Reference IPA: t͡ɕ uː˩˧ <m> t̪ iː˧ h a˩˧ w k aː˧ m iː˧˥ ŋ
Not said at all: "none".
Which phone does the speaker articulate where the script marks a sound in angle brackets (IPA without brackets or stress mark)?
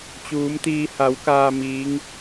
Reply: m